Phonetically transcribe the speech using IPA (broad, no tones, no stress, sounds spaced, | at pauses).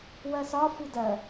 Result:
w ɜ s ɒ f u d ɜ